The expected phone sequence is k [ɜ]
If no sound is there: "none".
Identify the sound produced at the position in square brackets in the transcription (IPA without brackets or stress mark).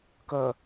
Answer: ɜ